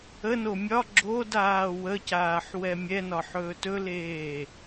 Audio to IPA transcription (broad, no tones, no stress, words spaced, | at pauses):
əno mʲɒ ɡ͡ǁodaː wəcaːħwɛ mʲɛnɒħɵː tɵleː